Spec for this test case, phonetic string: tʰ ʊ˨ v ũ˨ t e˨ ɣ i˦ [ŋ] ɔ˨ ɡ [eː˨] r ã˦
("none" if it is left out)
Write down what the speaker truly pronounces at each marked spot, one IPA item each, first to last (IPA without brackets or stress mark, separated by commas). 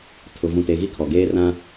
kʰ, eː˦